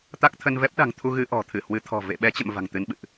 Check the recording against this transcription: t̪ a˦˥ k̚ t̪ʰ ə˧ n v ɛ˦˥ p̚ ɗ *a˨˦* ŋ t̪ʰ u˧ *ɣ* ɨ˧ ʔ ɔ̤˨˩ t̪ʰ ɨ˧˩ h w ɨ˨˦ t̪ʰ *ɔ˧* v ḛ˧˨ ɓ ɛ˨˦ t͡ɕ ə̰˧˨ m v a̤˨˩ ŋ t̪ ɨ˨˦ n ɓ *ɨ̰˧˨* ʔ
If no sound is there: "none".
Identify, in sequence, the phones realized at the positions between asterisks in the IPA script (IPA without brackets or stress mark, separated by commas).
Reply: a̤˨˩, ɣ, ɔ̤˨˩, ɨ̰˧˨